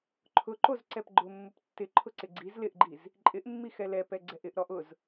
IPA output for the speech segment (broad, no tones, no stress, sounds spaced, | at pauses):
ǃʰ ʊ ǃ o z ǀ ɛ p ɡ͡ǃ ʊ mː ʊ p tː ɪ ǃʰ ʊ ǀ ɪ ɡ͡ǀ i z l ɪ ʔ ɡ͡ǃ i z | ǃʼ ɪ ʔ mː i x ɛ l ɛ p ɛ ɡ͡ǀ ɛ ʔ ɪ ʔ ɾ ɔ ʔ ʊ z